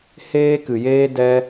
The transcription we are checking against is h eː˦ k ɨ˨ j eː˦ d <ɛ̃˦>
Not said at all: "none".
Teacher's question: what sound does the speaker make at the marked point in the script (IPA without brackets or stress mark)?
ɛ˦